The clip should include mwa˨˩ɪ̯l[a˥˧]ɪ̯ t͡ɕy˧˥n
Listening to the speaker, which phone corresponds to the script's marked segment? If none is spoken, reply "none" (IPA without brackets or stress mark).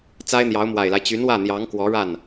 a˦